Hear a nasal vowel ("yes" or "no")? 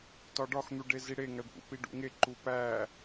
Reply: no